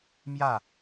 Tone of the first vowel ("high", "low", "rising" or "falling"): falling